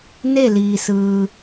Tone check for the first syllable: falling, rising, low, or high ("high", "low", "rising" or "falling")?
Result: falling